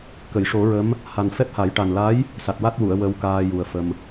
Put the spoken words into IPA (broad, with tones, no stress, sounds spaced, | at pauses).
k ə˨˩˨ j ʂ o˨˩˦ ɹ ə˧˥ m | h a˨˩ n f ɛ˦˥ p̚ h a˨˩˦ j ʈ a˨˩ n l a˧˥ j | s a˨˩ t̚ w a˦˥ t̚ w u˨˩˨ ə̯ w ə˧ w k aː˧ j u˨˩ ə̯ f ə˧ m